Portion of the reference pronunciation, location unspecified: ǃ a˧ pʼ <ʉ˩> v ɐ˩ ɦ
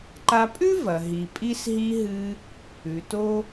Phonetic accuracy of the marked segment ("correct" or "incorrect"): incorrect